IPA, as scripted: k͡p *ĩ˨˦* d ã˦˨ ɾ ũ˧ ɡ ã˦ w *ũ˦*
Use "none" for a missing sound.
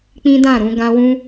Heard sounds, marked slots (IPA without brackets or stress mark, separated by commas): ĩ˦, ũ˦